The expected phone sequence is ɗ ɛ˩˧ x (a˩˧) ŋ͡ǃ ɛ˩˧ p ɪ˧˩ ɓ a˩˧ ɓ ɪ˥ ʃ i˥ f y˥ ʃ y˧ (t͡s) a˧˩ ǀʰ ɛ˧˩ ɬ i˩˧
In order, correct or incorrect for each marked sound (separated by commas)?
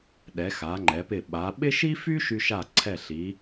correct, incorrect